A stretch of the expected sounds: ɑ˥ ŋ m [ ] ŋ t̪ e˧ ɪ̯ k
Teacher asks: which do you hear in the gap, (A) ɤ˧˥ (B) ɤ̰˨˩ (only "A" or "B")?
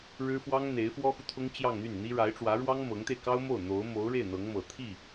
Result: A